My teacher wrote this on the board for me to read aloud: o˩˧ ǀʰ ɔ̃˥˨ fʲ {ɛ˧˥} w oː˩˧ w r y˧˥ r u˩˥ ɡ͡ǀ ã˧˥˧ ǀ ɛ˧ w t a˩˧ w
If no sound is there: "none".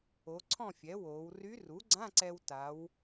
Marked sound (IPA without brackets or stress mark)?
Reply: ɛ˩˥